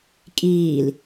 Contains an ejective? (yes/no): yes